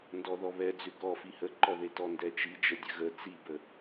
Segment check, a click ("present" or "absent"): present